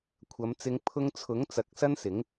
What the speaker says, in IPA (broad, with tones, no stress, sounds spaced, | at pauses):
kʷʰ ɐ˨˧ m t͡s ɪ˧ ŋ pʰ ʊ˧ ŋ t͡sʰ ʊ˨˥ ŋ t͡s ɐ˨˥ k̚ s ɐ˥ n s ɪ˨˥ ŋ